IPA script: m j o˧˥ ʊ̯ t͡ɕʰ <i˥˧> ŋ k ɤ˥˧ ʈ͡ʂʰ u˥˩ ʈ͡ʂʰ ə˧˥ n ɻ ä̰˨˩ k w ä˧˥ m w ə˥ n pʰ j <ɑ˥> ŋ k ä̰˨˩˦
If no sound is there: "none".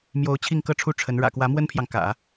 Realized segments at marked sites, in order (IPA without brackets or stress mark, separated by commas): i˥˧, ɑ˨